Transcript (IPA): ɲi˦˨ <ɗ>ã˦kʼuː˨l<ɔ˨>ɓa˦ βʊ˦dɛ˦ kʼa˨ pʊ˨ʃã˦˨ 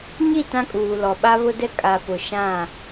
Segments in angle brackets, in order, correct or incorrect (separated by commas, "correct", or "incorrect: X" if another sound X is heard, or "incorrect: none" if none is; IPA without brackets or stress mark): incorrect: t, correct